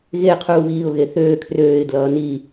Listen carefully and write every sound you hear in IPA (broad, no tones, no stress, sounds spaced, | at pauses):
ɣ e qʰ uː β iː ʊ̯ ɣ e θ øː kʰ r øː ɪ̯ d l ʌː n i